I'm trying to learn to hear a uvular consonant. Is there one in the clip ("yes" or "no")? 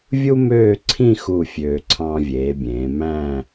no